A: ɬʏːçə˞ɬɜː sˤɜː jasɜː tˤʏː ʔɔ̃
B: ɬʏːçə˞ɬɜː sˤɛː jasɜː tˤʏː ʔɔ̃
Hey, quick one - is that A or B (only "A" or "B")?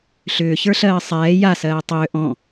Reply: B